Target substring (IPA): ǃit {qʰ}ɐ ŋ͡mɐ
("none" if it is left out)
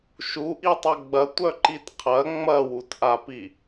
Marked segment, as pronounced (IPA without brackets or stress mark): qʰ